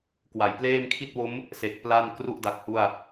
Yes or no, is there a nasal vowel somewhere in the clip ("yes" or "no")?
no